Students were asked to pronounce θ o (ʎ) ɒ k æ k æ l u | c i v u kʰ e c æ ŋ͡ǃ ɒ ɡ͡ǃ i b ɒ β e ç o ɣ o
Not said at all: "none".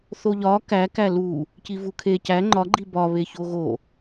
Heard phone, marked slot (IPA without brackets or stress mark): ʎ